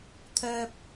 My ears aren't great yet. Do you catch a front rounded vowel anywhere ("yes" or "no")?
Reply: yes